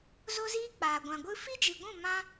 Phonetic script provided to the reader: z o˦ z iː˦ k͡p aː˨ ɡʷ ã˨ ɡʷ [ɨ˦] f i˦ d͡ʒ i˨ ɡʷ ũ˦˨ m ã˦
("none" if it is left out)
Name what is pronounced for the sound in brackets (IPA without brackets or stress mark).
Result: ɨ˦